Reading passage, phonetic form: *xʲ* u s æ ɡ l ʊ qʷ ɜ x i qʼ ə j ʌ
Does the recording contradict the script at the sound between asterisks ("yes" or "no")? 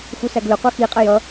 yes